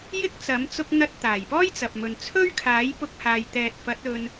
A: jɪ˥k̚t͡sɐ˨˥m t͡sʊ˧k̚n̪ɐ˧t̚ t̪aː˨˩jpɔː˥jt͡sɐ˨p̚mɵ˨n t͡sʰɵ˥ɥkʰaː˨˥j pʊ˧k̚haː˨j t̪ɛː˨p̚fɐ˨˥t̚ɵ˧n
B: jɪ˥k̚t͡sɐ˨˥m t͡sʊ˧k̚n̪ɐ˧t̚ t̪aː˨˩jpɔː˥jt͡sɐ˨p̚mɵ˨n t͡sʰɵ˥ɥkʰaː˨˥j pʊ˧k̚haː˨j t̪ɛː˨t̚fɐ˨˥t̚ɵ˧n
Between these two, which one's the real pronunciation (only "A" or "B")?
B